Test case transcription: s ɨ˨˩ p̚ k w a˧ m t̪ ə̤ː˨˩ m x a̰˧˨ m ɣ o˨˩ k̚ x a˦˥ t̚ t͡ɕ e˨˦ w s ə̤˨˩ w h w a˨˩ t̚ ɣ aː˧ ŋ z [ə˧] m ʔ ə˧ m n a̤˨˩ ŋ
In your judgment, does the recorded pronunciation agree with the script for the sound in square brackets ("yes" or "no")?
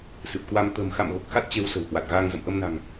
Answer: no